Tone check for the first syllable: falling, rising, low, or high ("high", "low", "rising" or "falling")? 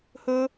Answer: high